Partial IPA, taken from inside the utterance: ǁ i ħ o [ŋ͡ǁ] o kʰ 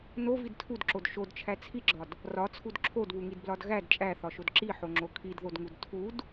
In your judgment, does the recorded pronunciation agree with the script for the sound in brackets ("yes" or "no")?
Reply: yes